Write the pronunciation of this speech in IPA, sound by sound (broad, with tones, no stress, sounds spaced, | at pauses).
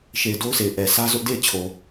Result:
ʃ e˨ ɪ̯ d o˦ ʊ̯ s e˨ ɪ̯ ʔ ɛ˨ s ä˦ z ʊ˦ ʔ d e˦˨ ɪ̯ t͡ɕʰ o˨